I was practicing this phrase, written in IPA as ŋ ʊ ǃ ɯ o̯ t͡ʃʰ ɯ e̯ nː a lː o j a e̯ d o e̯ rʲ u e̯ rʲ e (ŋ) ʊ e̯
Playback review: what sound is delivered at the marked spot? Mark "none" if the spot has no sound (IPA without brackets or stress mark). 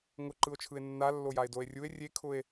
kʰ